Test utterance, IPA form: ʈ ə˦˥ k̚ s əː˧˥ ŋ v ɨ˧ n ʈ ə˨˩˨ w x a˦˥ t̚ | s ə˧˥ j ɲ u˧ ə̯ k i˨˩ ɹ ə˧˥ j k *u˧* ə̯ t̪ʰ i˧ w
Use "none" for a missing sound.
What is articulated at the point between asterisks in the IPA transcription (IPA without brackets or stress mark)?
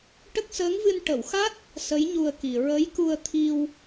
u˧